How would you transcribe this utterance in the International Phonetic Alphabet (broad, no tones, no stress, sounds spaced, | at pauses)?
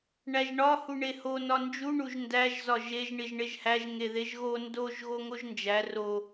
ɳ æ ʒ ɳ ɒ h u ɳ e h o n ɒ n d͡ʒ u ɳ u ʒ n d æ ʒ z ɒ ʒ e ʒ ɳ i ʒ ɳ e ʒ h æ ʒ ŋ e ð e ʒ ɣ o n d o ʒ ɣ o ŋ o ʒ n d͡ʒ æ r o